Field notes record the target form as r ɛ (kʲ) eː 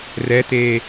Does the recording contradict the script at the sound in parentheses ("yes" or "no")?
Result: yes